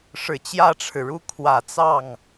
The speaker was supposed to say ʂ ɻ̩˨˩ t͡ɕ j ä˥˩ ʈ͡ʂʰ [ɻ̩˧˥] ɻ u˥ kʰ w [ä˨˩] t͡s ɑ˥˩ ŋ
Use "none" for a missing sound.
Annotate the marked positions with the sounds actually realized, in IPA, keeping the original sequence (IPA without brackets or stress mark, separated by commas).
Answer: ɻ̩˩, ä˨˩